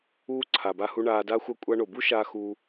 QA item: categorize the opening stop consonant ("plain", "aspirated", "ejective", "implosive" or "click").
click